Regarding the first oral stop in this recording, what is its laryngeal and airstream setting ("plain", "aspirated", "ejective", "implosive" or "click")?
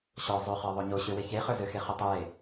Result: plain